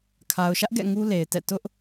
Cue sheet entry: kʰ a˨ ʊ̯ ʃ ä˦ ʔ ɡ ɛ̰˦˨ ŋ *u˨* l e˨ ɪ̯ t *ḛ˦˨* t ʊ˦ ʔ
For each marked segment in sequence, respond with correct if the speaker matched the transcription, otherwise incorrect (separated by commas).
incorrect, incorrect